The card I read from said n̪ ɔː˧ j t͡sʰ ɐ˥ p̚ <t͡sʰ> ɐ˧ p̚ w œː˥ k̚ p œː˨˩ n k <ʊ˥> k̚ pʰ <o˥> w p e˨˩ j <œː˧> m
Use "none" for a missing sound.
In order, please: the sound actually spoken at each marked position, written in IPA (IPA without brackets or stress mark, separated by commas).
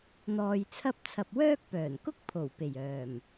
t͡sʰ, ʊ˥, o˨˩, œː˨˩